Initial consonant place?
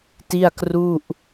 alveolar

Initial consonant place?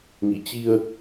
velar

